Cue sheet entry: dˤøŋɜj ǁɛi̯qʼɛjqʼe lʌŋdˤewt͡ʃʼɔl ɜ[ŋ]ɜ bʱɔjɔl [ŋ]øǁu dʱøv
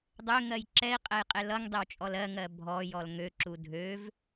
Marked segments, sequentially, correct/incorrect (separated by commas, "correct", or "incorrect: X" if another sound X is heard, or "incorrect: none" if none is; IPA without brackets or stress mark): correct, correct